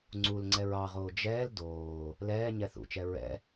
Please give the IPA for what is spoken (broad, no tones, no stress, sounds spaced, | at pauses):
ŋ͡ǀ u l ŋ͡ǀ ɛ ɹ ɑ ʁ oː d͡ʒ ɛː l d oː | l ɛː ɲ ɛ θ ṵ t͡ʃ ɛ ɹ ɛ̰